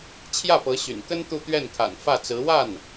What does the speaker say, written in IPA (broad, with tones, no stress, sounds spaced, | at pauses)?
t͡ɕʰ j ä˥˩ p ɤ˧˥ ɕ y̰˨˩ n k ə˥ n t̪ u˥˧ t̪ ɥ ɛ˥˩ n kʰ a̰˨˩ n f ä˥˩ t͡s ɹ̩˧˥ w a˥˩ n